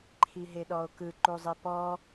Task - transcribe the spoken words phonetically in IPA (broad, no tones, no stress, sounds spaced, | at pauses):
ǃʰ i ɦ e ɗ ɔ o̯ k ɯ ǃ u zˤ i p ɔ